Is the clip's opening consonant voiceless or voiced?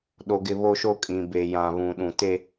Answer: voiced